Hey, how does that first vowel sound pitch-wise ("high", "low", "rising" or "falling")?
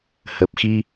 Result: low